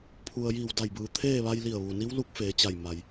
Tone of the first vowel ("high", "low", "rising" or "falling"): low